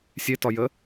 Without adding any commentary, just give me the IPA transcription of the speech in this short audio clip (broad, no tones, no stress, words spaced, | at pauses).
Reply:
sʲetɒjə